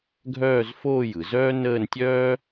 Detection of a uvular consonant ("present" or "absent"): absent